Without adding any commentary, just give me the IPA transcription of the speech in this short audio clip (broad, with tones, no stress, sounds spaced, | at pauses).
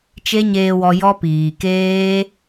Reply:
t͡ʃ e˦ ɲ eː˧ w ɔ˧ j ɔ˦ p iː˨ k eː˦